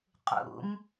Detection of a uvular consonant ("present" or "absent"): present